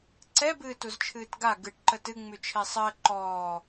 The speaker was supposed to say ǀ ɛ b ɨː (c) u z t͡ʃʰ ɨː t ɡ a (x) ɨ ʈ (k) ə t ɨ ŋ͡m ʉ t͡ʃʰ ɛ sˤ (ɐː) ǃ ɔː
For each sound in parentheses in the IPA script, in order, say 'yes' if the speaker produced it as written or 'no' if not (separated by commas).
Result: no, no, no, no